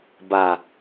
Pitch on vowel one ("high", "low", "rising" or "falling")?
low